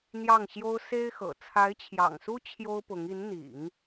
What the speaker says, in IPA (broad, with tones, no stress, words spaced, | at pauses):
n̪jɑ˥˩ŋɕjo˥ʊ̯ se˥ɪ̯xɤ̰˨˩ t͡sʰa˧˥ɪ̯t͡ɕʰjɑ̰˨˩ŋsu˥ t͡ɕʰjo˥ʊ̯pʊ˧˥ŋ i˧˥nn̪ḭ˨˩˦ŋ